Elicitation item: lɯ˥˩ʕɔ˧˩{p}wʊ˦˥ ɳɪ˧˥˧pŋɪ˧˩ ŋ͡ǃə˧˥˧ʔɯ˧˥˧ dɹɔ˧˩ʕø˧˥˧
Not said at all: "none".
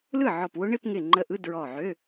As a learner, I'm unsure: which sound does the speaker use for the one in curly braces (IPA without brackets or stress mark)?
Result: p